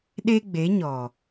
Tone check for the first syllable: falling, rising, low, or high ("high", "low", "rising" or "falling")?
high